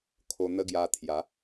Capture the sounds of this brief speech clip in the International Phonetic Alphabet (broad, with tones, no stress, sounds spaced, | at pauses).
kʰ o˧ n̪ ə˦ ɡ j a˧ t̪ʰ j a˨˦